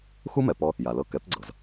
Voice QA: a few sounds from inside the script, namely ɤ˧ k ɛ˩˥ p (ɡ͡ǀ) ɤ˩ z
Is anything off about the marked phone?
no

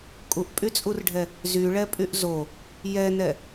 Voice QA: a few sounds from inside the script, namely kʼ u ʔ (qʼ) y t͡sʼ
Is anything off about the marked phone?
yes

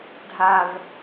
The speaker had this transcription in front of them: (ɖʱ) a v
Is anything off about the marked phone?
no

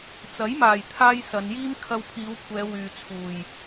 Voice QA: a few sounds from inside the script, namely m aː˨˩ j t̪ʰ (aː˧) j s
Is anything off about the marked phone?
no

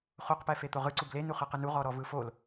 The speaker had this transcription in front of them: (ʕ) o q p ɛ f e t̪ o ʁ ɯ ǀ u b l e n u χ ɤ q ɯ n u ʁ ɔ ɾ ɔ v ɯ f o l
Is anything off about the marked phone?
yes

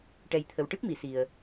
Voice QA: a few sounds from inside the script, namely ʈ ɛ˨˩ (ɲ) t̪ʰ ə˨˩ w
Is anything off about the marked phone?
yes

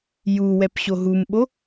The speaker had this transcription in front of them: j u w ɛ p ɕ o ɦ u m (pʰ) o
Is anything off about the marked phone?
yes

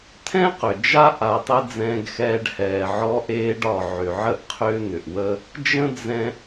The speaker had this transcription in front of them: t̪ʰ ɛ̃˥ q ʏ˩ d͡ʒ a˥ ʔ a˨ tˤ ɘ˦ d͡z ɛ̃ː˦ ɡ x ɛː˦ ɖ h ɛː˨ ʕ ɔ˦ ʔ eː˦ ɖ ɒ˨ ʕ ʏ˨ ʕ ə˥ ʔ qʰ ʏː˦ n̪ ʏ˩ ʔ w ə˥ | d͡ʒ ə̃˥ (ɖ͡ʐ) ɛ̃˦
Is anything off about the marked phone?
yes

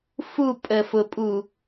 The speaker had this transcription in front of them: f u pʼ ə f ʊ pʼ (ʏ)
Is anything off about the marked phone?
yes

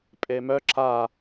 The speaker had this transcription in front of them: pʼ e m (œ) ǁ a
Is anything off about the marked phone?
no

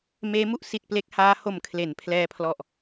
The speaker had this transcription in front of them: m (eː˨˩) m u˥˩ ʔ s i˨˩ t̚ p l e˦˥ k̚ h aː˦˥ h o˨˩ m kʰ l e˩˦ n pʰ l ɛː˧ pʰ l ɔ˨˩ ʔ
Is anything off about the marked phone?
yes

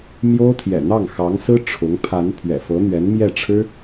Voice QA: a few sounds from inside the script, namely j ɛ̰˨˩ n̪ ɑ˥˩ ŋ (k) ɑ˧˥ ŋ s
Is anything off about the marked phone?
yes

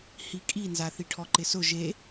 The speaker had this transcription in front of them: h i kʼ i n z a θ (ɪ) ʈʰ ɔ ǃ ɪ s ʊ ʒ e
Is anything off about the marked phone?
yes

